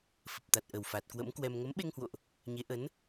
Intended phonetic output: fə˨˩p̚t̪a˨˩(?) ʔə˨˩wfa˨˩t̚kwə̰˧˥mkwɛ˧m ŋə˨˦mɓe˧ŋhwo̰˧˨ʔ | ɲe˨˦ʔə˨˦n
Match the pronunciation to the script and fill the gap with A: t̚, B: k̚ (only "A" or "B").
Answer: A